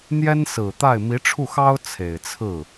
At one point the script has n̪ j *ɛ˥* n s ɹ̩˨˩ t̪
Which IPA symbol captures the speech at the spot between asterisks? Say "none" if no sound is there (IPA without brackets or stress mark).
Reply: ɛ˥